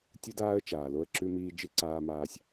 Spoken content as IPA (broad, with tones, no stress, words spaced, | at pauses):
tʲu˦daː˦ə̯t͡ʃaː˨ lo˦ə̯ǁʉ˦miː˦ d͡ʒɨ˦ǀaː˦maː˦sʲ